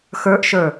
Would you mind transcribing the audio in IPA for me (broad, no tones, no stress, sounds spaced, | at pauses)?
x ə˞ ʔ ʃ ə˞